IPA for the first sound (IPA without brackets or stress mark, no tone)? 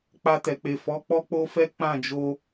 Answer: k͡p